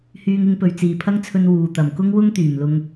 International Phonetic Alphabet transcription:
hyː˨ŋɪ˧ŋpɵ˨˩ɥ t͡siː˨˩pʰɐ˥ŋt͡sʰɵ˧n wuː˨˩ t̪ɐ˨˩mkʊ˥ŋwʊ˥ŋ t̪yː˨˩mlʊ˧ŋ

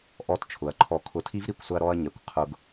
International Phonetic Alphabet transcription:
ʔɔ˧˥˧tt͡ʃʰʊ˩˧ɐ̯ǃʰɔ˧˩˧ kʰʊ˧˩˧tʰi˦˥vɾi˧˩˧kʷsʊ˧ɐ̯ ɾɔ˧ɐ̯ɲɛ˩kʷ qʰʊ˧ɡ

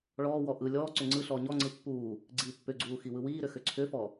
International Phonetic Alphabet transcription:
ɭɔːwɔ ʔɯ lʲɔː ǀʏŋ͡ǀɯɬɔː ɲɔŋ͡ǀɯ pːuː | ɡ͡ǀiːpːʏɡ͡ǀuː xiwɯwiːɾʏ xʏǀʰʏfɔ

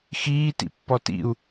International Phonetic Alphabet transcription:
xiːtḭpːɔ tḭu̯

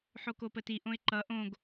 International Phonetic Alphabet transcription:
ħokopəti ʔõɪ̯ǃʌ ʔõɡ

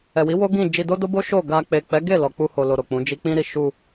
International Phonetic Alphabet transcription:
ɛ˨wi˨˦ wo˦ɡĩ˦˨ d͡ʒi˧do˦do˦ bo˦ ʃo˦˨ ɡa˧ k͡pe˨k͡pɛ˨˦ ɡe˦˨ lɔ˨k͡pu˧ho˨ lo˧ɾo˨k͡pũ˨˦d͡ʒi˦ k͡pĩ˦ɾi˧ ʃu˧

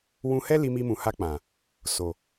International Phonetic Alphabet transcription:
wũ˧hɛ˦ li˧mi˧mũ˨ha˧ k͡pã˨ | so˨

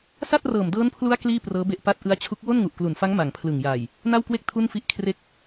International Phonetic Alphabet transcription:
sa˥˩t̚rɤː˨˩mdɤː˦˥npʰlu˦˥a̯ kliː˥˩prɤː˦˥be˦˥ʔpa˦˥t̚ ʔɯ˦˥a̯t͡ɕʰu˦˥k̚ wo˥˩nŋu˨˩ʔklu˨˩nfa˦˥ŋ ma˨˩ŋpʰlɯ˨˩ŋjaː˨˩j | na˥˩wkwe˥˩k̚ tʰu˥˩n fi˦˥ʔ kʰre˦˥k̚

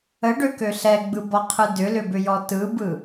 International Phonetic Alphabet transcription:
əɖøkø ɬɛɡ͡bɯbɔqʰɯ dʏlʏbʏjɔ tɯbɯ

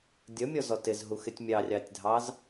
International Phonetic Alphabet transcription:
dʲʌmʲɔzɔ tɪzɦuxɪtʲ mʲɑrʲɑtʲdʱɑz

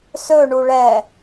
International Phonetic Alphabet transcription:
sɵɳu ɭɛ

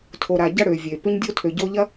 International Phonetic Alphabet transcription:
tʰo˨ɾa˨ɟɐ˦ɽø˨ vʲe˨ pʏ˦ɲdʲo˦tʰø˨ ɟo˦ʎɐ˦

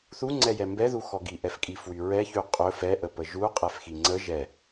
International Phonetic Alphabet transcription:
θuŋ͡ǀɛjɛ mbɛðuxɔ ɡiʔɛfkʼifwy ɹɛçy qʼɵ fɛʔəpə ʒuqʼɛfxi ŋ͡ǀə ʒɛ

